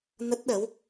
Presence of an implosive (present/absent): present